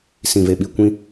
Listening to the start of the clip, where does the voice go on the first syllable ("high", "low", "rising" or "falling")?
low